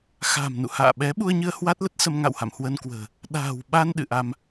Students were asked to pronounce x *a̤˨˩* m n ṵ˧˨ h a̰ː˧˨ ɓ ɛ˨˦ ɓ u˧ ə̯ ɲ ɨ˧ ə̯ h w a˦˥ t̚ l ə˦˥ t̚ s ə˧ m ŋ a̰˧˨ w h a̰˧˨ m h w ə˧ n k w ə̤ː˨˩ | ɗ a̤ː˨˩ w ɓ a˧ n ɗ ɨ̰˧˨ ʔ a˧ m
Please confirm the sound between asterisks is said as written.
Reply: yes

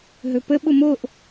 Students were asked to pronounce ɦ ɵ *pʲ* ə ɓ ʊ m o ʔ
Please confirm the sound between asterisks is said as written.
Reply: no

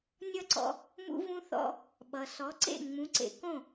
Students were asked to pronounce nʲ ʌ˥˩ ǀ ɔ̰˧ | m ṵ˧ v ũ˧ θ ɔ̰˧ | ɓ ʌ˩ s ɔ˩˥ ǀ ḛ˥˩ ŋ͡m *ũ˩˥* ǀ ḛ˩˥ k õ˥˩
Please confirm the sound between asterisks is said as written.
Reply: yes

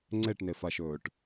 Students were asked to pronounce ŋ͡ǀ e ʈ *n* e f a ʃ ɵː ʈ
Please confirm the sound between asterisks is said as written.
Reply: yes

